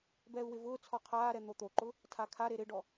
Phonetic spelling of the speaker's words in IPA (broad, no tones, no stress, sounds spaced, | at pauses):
b ɛː u̯ w ɪ v ʊː t͡sʰ ɔ qʰ aː ɾ ɛ n̪ o t̪ o ǃ ʊ | tʰ a kʰ a ɾ e ɾ ɪ ɖ ɔ